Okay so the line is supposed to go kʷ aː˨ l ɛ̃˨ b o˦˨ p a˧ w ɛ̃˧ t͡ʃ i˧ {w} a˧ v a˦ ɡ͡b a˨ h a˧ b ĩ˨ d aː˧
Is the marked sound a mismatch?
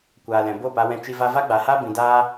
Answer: yes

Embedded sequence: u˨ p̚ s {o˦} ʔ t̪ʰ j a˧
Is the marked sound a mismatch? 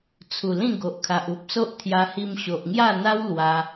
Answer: no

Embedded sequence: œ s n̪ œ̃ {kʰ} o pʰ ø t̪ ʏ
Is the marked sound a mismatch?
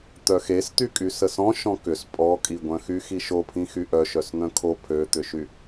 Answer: no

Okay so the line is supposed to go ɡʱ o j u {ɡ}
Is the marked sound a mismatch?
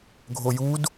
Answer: yes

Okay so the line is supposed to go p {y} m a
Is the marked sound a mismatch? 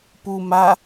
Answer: yes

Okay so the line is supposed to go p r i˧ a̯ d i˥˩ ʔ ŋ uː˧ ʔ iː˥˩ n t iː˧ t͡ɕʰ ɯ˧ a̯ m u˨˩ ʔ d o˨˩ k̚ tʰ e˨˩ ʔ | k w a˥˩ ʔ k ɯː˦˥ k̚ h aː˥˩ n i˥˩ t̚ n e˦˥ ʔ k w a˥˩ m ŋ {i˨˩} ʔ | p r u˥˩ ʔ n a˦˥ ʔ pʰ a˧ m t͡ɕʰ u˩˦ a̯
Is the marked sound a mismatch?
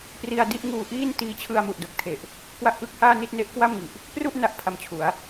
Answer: no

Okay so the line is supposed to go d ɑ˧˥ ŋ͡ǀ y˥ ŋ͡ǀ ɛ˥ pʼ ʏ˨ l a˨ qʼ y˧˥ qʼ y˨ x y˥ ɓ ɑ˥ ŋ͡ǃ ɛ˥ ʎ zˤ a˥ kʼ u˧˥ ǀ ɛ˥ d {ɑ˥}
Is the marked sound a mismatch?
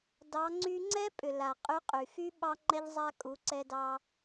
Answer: no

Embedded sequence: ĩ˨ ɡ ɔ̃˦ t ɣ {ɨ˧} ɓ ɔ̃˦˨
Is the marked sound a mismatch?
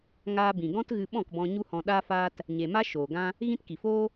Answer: no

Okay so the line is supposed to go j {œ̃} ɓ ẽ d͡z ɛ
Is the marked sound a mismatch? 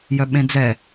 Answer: yes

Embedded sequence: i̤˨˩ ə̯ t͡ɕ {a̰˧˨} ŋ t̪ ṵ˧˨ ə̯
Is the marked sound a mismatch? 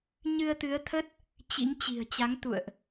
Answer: yes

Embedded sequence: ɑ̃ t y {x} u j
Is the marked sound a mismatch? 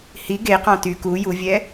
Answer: yes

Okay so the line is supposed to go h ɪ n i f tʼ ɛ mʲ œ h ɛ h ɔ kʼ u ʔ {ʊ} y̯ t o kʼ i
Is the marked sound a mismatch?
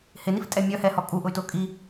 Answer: no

